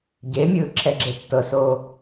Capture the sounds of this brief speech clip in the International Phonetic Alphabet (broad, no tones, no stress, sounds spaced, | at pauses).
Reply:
ɟ e mʲ ɯː ǁʰ ɛ ɡ͡ǁ e tː ɤ s oː